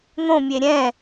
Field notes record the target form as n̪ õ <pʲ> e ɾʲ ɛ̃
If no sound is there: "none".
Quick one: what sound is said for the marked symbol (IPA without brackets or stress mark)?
mʲ